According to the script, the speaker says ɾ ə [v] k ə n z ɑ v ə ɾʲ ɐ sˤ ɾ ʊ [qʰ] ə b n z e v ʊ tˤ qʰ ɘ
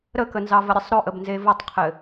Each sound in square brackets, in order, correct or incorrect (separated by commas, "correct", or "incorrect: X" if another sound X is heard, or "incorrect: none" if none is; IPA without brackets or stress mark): incorrect: none, incorrect: ʔ